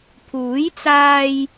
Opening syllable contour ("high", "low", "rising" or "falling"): rising